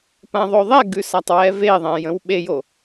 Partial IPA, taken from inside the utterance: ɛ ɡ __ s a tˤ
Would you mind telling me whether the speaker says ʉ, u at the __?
ʉ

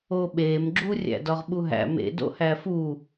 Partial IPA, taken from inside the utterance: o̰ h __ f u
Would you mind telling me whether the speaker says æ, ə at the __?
æ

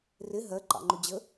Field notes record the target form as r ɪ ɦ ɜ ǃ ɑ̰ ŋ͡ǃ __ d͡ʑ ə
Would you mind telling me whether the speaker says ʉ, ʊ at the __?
ʊ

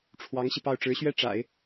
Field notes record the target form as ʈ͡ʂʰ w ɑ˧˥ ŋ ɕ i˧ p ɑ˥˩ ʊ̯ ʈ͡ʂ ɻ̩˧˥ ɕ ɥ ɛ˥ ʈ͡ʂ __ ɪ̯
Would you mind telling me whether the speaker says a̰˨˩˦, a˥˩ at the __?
a̰˨˩˦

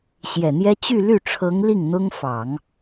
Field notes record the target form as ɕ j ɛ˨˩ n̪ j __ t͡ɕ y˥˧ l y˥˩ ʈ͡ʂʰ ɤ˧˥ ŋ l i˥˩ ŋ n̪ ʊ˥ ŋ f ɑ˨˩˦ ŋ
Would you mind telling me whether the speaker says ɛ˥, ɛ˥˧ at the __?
ɛ˥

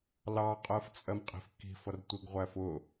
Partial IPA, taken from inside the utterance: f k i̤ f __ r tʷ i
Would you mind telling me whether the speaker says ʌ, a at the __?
ʌ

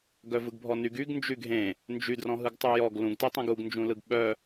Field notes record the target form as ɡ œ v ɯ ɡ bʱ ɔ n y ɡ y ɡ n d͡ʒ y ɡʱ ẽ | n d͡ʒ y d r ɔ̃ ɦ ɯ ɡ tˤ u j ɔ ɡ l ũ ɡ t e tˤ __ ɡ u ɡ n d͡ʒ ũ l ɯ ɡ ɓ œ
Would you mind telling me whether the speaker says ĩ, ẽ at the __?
ẽ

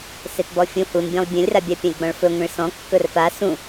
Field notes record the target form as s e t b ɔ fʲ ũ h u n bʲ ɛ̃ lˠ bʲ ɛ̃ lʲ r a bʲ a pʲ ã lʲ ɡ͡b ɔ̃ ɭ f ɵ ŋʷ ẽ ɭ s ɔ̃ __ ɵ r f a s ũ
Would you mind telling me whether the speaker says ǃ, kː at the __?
kː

